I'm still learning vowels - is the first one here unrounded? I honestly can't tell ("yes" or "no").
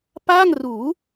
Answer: yes